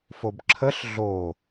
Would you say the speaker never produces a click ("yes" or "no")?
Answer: no